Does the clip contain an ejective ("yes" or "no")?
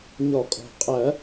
yes